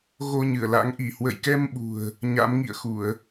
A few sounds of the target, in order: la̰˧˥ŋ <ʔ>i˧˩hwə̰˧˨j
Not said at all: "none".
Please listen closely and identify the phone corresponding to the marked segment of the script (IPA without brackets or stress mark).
ʔ